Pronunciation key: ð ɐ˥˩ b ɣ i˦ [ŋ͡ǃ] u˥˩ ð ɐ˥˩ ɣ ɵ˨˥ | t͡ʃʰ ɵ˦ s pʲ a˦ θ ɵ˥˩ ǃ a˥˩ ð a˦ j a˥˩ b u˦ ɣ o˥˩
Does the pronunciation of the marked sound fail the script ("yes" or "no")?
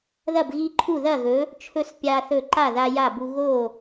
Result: yes